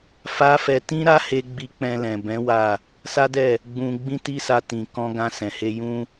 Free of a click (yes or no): yes